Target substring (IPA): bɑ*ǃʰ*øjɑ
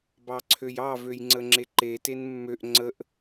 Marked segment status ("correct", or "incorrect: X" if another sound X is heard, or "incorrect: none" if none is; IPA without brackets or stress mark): incorrect: ǀʰ